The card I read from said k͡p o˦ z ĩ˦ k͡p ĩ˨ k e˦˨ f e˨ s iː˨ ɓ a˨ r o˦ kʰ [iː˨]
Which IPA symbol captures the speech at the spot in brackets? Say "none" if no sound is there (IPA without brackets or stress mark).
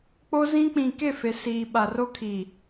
iː˨